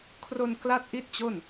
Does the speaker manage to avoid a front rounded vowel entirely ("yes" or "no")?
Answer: yes